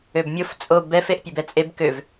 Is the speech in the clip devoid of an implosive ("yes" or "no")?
yes